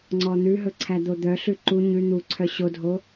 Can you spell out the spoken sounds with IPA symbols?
ŋ͡ǀ ɔ n̪ ʉ ɦ ɵ ǀʰ æ d̪ o d̪ œ ɬ ʉ ǃ u ɲ ʉ n̪ u ǀʰ œ ɕ o dʱ o

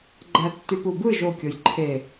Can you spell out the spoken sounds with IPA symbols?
ɡ͡ǃ æ tː y p u b ɯ ʒ o kʲ o j ǃʰ e

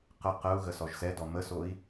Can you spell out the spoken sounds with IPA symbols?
q ə q ə u̯ ɣ ə s ɔ ʒ s ɛ d ɔ m ə s o i̯

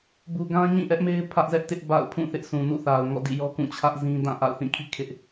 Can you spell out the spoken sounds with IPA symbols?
b u˨ ɡ ã˦ ɲ ĩ˦˨ ʔ ɛ˦ ʔ m e˦ ɪ̯ pʰ ä˦ ʔ z ɛ˦ ʔ t ɪ˦ ʔ b a̰˦˨ ʊ̯ pʰ ũ˦˨ θ ɪ˦ ʔ sʰ ũ˨ n ṵ˦˨ θ a˨ ʊ̯ ŋ ɔ̰˦˨ d ḭ˦˨ j ɔ˦ k ũ˦˨ t͡ɕʰ ä˦ ʔ z ĩ˦ d ã˦˨ ʔ a̰˦˨ ʊ̯ θ ĩ˦˨ kʰ ḭ˦˨ kʰ ɪ˦ ʔ

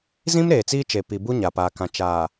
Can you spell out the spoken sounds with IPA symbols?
z ĩ˦ m ɾ eː˨ t͡s iː˦ t͡ʃ e˨ p i˨ b u˦ ɲ a˨ p aː˨ k ã˨ t͡ʃ aː˨

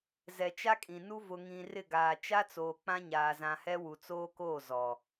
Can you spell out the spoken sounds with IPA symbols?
z ɛ˨ t͡ʃ a˦ kʼ ĩ˨ n u˦ v ʊ˨ ŋ ĩ˨ r ɪ˦˨ ɡ aː˨ t͡ʃ a˦ t͡s oː˨ k͡p ã˦ ɲ aː˨ z ã˨ h ɛ˦ w u˨ t͡s oː˦ k oː˦˨ z ɔ˨

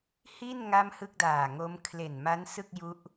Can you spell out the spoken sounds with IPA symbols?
h i˥˩ n ŋ a˥˩ m h ɯ˥˩ k̚ d aː˨˩ ŋ o˦˥ m kʰ l e˨˩ n m a˦˥ n s ɯ˥˩ k̚ j u˦˥ ʔ

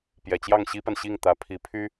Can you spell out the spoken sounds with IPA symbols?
p j ɛ˨˩ t͡ɕ j ɑ˥˩ ŋ ɕ i˥ p a˨ n ɕ i˥˩ ŋ t̪ ä˧˥ pʰ i˧˥ pʰ y˥

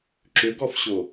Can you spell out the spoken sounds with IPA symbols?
ǁ ʏ ɡ ɔ f ɕ o

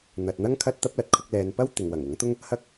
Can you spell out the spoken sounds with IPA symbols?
n̪ ɐ˨ t̚ n̪ ɐ˥ ŋ kʰ ɐ˥ t̚ t̪ ɐ˥ p̚ l ɐ˨ t̚ kʰ ʊ˧ k̚ l ɛː˨˧ n p ɐ˥ w t̪ ɪ˨ ŋ w ɐ˨˩ ŋ ʊ˨˥ ŋ t̪ ʊ˥ ŋ | h ɐ˥ k̚

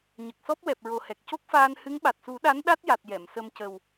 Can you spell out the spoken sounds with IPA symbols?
ɲ ə˨˩ k̚ s ɔ˦˥ p̚ w ɛ˨˩ p̚ ɹ o˨˩ h ɛ˨˩ k̚ c o˦˥ k̚ f aː˧ n h ɨ˧˥ ŋ ɓ a˨˩ t̚ s u˨˩˦ ɗ a˧˥ n ɗ a˦˥ t̚ j a˨˩ t̚ j ɛ˨˩˨ m s ə˧ m c ə˨˩ w

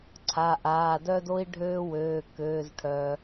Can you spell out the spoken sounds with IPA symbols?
ǀʰ a˩˧˩ ʔ aː˩˧˩ d œ˦ d o˦ i̯ ɖʱ øː˦ w øː˩˧˩ k øː˩˧˩ z ʈʰ œ˩

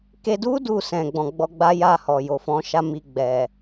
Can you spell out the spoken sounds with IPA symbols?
k e˧ d u˦ d u˦˨ s ɛ̃˨ ɡ͡b ɔ̃˨ ɡ͡b ɔ˧ ɡ͡b a˦ j a˦˨ h ɔ˨ j o˨ f ɔ̃˨˦ ʃ a˦ m i˧ ɡ͡b ɛ˨

